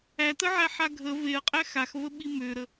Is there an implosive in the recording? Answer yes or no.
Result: yes